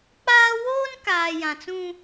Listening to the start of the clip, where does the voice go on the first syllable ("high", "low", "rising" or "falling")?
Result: high